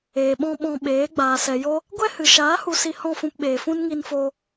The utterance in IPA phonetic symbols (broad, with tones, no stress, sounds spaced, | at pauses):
eː˨ ɓ ɔ̃˦ ɓ ɔ̃˧ ɓ eː˨˦ ɡ͡b aː˨ s ɛ˨ j o˦ | ɡʷ ɛ˦ h ɨ˨ ʃ aː˨˦ h u˧ s i˧ h ɔ̃˦˨ f ũ˧ p ɓ eː˨ f ũ˦ n ŋ i˧ n f o˧